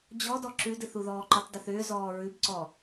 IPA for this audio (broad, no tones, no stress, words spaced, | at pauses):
d͡ʑɔdɔ ǁʉdɨθuðɔː ǃʉtˤdʏθʏː zɔːɹʉbǀɔ